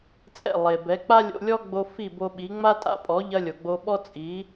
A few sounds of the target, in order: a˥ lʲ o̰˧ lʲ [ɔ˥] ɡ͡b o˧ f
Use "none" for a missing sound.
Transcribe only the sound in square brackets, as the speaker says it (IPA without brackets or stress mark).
ɔ˥